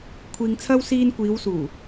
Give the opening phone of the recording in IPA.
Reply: kʷʰ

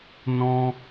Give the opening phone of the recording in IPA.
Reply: n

